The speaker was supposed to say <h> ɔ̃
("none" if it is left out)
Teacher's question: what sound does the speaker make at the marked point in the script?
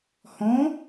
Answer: h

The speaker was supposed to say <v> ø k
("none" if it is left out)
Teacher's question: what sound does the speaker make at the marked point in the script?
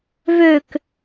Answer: v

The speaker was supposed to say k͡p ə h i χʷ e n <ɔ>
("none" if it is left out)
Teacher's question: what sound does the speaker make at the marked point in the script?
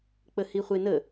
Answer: ə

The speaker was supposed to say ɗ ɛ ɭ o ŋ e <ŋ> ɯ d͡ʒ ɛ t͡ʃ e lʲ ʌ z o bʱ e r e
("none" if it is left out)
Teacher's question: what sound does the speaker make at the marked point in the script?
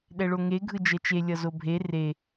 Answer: ɡʱ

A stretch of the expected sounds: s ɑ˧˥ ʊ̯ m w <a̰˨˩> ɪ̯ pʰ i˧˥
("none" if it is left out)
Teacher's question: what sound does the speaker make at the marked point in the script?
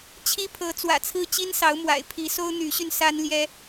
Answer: a̰˨˩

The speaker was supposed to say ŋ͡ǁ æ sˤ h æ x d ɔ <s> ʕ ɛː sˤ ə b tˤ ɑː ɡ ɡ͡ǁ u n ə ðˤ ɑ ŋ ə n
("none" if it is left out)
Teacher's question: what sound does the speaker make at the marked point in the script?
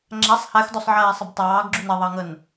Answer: sˤ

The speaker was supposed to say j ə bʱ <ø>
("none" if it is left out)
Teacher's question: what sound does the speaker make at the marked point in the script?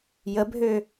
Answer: ø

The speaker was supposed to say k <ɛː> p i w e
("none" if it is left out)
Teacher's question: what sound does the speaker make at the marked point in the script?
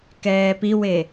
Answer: ɛː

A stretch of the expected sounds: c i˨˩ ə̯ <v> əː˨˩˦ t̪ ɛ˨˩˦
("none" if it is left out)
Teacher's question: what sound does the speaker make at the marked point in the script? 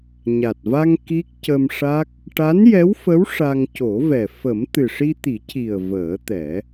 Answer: v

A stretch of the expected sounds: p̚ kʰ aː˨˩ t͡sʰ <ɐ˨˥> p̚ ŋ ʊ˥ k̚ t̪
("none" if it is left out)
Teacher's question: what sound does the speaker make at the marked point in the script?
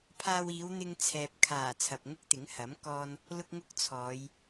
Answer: ɐ˨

